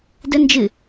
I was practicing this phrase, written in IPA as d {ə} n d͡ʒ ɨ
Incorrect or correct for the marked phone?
correct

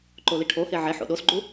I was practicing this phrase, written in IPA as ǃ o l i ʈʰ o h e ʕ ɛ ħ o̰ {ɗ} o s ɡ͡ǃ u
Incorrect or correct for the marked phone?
correct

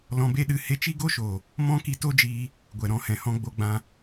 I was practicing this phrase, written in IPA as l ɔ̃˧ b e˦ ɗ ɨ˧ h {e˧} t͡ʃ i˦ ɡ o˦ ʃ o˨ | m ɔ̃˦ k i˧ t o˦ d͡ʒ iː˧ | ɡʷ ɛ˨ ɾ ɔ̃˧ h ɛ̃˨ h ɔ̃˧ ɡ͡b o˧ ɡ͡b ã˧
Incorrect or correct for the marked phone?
correct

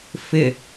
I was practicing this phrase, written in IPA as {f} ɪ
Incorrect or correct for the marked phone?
correct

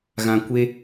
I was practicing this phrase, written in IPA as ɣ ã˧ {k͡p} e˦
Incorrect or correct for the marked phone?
incorrect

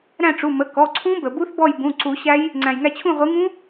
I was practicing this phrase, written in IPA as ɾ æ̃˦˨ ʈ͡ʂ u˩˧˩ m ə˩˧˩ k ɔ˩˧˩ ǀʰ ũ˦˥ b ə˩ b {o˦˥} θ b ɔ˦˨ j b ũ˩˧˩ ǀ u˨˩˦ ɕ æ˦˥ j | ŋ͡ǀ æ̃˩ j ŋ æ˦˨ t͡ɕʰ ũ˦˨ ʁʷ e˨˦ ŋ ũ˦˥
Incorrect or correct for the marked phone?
incorrect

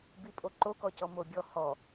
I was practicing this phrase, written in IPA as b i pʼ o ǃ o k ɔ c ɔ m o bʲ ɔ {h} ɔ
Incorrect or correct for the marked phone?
correct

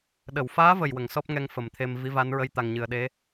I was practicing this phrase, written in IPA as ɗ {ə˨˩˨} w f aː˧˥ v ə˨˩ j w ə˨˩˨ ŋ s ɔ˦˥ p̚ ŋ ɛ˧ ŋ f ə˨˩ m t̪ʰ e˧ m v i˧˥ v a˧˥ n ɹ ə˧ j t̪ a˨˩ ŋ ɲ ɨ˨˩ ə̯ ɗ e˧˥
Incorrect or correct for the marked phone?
correct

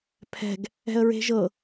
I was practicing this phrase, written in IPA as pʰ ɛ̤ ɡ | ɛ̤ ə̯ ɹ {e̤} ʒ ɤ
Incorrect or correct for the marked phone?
correct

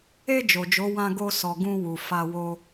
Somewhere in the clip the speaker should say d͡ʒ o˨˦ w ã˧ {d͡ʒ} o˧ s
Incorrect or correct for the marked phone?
incorrect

